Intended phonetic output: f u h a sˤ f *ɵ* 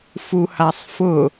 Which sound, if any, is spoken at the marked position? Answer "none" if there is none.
ʊ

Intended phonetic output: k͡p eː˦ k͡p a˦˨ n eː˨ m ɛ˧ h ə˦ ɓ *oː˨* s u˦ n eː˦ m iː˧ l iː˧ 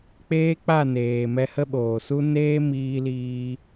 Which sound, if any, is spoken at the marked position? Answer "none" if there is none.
oː˨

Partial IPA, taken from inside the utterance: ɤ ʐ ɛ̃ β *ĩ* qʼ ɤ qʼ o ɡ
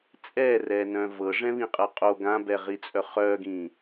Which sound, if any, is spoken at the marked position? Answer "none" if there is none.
ĩ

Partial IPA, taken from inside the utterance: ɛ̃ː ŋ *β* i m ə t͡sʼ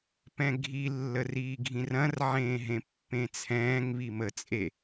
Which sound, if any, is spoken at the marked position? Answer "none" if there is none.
β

